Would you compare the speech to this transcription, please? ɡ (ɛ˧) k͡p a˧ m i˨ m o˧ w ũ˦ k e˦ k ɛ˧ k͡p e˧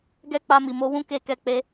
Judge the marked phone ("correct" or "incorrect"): incorrect